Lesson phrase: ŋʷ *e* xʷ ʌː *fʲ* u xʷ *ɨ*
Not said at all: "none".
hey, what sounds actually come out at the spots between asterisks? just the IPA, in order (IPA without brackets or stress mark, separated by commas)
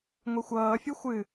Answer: e, fʲ, ɨ